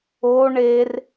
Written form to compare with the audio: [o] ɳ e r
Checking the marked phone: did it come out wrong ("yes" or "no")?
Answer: no